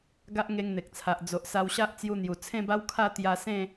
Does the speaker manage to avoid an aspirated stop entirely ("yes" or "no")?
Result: no